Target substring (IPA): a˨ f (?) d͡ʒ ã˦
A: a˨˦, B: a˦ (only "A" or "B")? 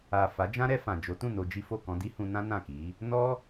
A